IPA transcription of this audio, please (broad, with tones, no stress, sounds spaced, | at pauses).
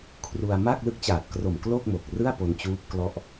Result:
kʰ r u˧ a̯ m a˥˩ k̚ l ɯ˦˥ k̚ t͡ɕ aː˨˩ t̚ k r o˨˩ m k l o˥˩ k̚ m o˨˩ k̚ r ɯ˥˩ a̯ p o˧ n t͡ɕ uː˦˥ p̚ k l ɔ˦˥ ʔ